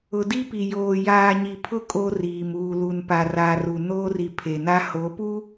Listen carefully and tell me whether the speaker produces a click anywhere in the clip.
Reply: no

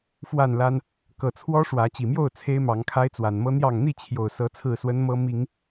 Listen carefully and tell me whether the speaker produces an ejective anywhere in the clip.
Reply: no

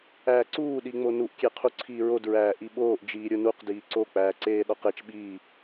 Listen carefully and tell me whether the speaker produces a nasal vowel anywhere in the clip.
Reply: no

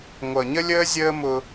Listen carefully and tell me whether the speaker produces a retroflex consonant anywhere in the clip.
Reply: no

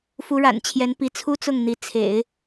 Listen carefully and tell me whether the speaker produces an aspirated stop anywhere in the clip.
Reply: yes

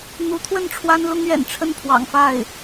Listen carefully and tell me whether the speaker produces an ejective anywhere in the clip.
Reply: no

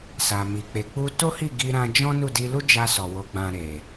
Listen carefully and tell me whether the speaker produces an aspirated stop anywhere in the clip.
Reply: no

